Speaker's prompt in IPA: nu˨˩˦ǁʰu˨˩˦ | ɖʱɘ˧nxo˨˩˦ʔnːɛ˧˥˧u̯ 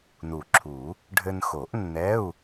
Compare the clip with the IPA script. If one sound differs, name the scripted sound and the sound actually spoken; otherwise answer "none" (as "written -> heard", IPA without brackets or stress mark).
none